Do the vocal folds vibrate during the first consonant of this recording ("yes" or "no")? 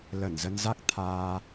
yes